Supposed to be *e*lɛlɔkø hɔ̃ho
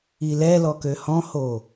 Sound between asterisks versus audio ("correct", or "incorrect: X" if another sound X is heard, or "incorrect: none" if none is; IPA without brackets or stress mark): incorrect: i